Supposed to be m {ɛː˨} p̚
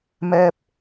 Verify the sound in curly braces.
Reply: incorrect: ɛː˥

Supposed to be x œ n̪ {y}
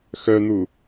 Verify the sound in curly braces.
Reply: incorrect: u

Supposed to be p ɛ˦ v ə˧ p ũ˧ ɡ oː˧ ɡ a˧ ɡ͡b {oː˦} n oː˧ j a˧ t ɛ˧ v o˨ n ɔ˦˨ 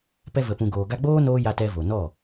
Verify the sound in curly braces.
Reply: correct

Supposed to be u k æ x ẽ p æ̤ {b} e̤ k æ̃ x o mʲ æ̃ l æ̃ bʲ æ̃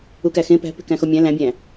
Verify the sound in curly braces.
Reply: incorrect: p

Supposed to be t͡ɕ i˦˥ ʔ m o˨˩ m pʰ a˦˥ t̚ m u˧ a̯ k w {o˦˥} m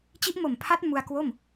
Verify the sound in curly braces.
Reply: incorrect: o˥˩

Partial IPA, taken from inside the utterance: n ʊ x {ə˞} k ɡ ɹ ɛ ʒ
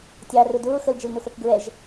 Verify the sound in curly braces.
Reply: correct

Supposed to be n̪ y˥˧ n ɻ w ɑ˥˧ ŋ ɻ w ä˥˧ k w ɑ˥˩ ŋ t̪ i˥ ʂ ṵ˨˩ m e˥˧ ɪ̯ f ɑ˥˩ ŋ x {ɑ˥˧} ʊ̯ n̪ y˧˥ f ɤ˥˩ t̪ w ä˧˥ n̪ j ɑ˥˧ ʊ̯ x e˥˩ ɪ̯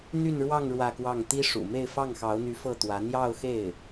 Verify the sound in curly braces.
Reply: incorrect: ɑ˧˥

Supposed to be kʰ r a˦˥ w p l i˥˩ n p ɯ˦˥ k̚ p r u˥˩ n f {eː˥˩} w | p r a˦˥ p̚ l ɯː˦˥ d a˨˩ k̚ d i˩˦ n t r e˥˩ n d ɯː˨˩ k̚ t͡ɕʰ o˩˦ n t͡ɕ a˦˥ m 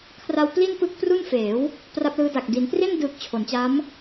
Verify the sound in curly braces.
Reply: incorrect: eː˩˦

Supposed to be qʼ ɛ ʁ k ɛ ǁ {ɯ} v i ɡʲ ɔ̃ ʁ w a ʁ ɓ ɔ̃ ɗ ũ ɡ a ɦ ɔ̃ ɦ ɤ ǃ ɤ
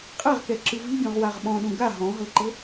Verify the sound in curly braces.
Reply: correct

